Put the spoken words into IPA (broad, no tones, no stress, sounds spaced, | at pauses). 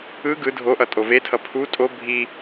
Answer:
ɯ ɡ ɯ dʱ o ʔ ʌ tʼ o v e tʰ ʌ pʰ u tʼ o bʱ i